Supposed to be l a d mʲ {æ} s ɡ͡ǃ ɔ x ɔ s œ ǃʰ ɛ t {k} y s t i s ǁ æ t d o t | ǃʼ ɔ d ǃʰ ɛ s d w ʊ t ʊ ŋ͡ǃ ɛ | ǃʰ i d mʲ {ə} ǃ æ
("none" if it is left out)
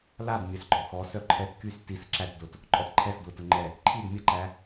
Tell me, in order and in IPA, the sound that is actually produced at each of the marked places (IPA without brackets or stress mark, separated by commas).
œ, k, ə